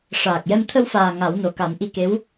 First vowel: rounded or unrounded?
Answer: unrounded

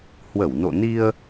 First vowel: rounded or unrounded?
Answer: unrounded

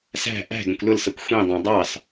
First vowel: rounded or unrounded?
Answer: unrounded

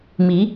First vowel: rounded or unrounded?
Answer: unrounded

